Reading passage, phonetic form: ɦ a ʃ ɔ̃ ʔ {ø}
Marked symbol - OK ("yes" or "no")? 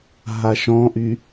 no